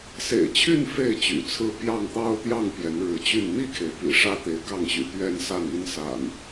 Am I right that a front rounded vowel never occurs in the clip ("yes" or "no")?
no